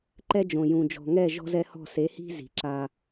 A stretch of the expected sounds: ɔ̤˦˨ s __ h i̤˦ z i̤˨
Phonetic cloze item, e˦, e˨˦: e˨˦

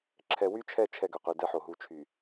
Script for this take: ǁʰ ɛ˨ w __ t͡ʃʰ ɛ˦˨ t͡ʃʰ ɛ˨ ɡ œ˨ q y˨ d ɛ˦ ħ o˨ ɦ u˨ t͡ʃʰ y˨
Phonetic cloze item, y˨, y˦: y˦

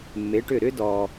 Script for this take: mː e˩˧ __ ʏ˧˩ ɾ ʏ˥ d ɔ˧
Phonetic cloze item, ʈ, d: ʈ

